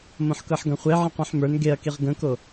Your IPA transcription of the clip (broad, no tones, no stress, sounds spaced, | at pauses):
m õ ħ k ɤ ħ ɡ ɐ̃ χʷ e ʕ ə̃ q ũ ħ m ə˞ n ɡ e ɐ̯ k i ʁ ɡ ə̃ k o